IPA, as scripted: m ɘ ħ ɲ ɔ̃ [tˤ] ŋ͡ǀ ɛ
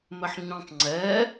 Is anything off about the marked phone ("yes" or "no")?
no